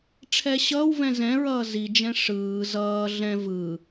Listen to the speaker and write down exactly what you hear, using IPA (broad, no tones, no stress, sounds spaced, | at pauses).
ʈ͡ʂʰ ɛ ɕ ʌː w v ɛ̃ z ɛ̃ ɹ ʌː z i d͡ʒ ɛ̃ ʂ ɯː z ʌː ɮ ɛ̃ v ɯ